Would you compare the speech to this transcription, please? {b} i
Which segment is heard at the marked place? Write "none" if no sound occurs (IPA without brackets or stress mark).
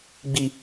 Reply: ɡ͡b